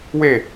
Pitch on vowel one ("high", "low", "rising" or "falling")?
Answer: falling